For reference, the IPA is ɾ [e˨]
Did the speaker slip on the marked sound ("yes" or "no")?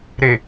no